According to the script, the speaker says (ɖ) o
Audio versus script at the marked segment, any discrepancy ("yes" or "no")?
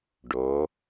no